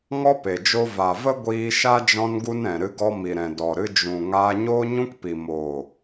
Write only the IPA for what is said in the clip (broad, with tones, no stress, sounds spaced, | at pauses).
ŋ ɔ˦ p e˨ d͡ʒ o˧ v a˨ v ə˦ ɡʷ iː˧ ʃ a˦ d͡ʒ ɔ̃˦ n ɡ u˦ n ɛ̃˨ ɾ ɨ˧ ɡ ɔ˧ m i˨ ɾ ɛ̃˨ d ɔ˨ ɾ ɨ˧ d͡ʒ ũ˨ ŋ aː˧ ɲ oː˦ ɲ ũ˦ k p i˨ m oː˨